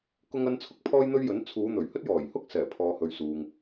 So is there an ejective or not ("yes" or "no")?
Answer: no